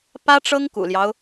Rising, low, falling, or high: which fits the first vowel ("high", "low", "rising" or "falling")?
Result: high